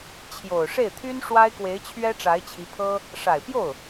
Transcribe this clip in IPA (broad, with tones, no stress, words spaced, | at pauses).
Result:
t͡ɕʰjo˨˩ʊ̯ ʂe˥˩ɪ̯t̪ʰy˥n ʂwa˥ɪ̯kwe˧˥ɪ̯ t͡ɕʰɥɛ˥ʈ͡ʂa˧˥ɪ̯t͡ɕʰi˧˥ pʰɤ˥ | ʂa˨˩ɪ̯pjo˥˩ʊ̯